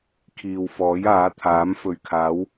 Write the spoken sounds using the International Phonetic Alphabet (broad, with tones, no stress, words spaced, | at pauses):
kʰiː˨wfɔː˨˥j aː˨˥t̪ʰaː˨˥mfɵ˨ɥkʰaː˨˥w